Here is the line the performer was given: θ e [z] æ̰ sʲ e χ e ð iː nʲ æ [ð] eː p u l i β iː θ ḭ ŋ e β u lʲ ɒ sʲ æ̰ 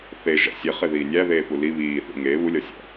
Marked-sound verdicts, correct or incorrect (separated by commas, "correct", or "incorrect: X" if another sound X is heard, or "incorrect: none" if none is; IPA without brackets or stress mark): incorrect: ʒ, correct